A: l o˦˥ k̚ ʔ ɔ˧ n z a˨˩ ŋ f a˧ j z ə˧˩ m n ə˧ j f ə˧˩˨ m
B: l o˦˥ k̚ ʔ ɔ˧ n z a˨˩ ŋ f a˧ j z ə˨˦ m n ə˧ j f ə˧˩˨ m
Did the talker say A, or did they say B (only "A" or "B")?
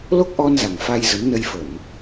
B